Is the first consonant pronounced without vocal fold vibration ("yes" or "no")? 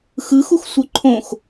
yes